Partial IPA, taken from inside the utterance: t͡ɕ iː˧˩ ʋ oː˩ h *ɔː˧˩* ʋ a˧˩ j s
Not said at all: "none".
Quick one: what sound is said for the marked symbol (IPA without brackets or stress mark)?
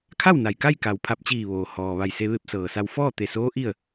ɔː˩